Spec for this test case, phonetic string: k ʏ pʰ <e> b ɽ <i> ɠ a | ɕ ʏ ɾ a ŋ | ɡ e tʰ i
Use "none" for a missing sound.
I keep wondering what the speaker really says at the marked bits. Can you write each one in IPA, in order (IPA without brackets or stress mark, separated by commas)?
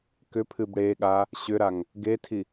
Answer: ɨ, e